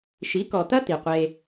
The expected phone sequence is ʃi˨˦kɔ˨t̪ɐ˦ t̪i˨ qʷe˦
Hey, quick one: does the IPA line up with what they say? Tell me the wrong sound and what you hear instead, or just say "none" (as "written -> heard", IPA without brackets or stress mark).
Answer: none